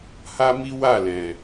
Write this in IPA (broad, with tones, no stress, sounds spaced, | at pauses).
h a˦ m i˦ w a˦˨ l ɛ̃˨